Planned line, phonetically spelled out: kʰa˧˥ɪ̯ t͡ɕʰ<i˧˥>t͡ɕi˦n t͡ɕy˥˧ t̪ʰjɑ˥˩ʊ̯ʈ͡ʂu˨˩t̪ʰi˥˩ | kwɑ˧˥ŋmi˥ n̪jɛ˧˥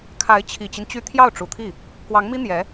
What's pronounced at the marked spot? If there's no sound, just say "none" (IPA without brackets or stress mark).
i˨˩